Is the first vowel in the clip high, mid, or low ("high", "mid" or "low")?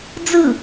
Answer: high